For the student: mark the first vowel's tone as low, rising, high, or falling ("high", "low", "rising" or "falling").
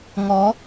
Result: rising